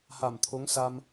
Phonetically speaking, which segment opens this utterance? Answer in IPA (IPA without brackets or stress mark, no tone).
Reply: h